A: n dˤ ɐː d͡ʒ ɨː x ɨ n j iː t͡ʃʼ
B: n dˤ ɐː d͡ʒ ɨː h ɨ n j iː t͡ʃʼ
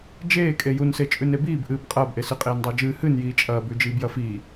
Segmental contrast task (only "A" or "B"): B